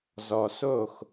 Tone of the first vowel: low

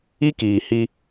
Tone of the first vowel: high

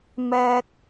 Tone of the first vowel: low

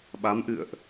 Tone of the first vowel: rising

